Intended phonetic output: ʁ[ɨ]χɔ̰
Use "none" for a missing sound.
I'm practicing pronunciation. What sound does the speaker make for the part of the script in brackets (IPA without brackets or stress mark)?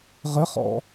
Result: ə